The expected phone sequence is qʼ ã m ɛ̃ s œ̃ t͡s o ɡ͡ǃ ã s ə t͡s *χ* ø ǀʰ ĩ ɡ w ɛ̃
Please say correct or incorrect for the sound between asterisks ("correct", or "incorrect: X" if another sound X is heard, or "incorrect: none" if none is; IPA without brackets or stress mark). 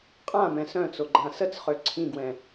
correct